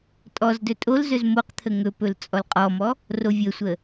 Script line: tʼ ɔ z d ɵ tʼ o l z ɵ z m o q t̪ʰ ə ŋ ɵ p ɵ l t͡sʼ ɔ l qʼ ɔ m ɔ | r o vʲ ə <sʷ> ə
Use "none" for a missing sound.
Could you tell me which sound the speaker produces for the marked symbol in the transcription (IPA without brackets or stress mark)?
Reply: sʷ